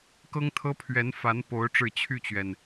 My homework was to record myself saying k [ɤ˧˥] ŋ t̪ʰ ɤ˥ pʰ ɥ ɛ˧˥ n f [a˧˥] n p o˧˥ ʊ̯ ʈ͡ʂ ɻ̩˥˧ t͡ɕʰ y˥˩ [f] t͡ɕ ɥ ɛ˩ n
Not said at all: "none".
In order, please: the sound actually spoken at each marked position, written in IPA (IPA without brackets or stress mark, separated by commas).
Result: ɤ˥, a˧˥, none